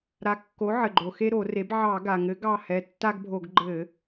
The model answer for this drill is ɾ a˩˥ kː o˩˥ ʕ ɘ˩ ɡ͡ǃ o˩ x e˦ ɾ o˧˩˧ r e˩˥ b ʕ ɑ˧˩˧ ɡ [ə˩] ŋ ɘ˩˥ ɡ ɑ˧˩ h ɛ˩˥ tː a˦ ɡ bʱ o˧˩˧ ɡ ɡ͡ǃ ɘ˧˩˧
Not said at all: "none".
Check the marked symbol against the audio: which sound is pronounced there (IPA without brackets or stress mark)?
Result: a˩